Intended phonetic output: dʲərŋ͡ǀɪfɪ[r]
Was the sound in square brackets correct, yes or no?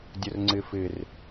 yes